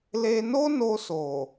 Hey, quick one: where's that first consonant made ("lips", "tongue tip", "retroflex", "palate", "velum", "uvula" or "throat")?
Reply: tongue tip